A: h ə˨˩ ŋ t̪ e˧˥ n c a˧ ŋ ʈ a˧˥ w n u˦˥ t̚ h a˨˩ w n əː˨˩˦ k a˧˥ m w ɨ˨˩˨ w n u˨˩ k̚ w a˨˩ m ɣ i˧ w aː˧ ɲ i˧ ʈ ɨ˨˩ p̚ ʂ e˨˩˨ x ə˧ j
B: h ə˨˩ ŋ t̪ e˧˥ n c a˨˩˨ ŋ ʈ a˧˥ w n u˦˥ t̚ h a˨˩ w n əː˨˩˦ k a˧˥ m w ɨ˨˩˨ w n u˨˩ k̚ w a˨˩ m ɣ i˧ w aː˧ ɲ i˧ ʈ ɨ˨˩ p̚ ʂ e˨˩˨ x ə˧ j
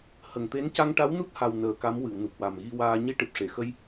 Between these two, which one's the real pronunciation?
A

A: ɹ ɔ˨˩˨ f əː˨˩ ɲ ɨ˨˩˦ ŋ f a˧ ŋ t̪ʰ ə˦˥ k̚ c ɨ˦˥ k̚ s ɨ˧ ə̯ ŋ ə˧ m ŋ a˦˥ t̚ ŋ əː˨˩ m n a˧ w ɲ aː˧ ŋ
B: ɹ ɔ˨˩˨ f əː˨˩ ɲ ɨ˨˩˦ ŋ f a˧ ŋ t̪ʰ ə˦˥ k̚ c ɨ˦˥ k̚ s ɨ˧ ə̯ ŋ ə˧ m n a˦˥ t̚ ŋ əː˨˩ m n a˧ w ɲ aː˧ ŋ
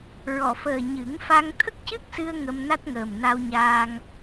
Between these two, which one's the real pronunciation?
B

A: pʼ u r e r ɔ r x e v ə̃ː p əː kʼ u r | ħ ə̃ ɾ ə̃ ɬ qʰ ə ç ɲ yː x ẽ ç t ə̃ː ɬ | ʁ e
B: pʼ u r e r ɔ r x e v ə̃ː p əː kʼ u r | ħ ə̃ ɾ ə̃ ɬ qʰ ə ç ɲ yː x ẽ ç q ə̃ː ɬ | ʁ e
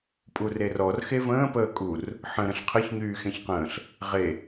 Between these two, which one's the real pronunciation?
B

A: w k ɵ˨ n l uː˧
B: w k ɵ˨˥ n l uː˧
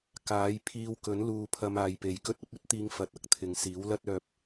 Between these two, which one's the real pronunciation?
B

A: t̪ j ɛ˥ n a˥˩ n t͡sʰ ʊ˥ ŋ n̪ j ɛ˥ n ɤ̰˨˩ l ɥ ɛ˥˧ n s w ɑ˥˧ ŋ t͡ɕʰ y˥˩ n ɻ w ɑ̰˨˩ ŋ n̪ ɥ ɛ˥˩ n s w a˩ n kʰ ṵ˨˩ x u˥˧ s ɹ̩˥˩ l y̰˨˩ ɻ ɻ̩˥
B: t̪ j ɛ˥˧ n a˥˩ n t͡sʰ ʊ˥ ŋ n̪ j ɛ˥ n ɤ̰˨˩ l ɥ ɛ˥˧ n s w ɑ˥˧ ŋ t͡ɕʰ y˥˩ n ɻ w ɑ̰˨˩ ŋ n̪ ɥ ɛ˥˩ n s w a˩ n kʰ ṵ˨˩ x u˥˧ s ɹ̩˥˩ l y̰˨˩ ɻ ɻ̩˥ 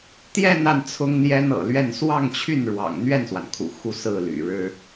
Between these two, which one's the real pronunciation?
B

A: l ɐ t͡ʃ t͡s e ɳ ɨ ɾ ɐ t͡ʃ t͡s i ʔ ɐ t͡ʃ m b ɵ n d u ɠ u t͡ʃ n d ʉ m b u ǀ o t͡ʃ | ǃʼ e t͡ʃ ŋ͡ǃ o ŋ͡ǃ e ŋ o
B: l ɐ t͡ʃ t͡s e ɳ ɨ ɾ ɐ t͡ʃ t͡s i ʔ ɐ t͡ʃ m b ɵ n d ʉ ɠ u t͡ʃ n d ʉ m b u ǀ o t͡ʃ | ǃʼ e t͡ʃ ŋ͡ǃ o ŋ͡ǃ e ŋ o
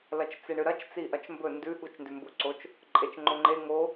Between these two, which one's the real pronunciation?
B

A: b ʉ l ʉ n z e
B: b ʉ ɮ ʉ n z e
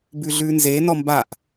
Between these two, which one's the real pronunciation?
B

